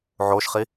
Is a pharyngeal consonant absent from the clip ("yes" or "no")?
no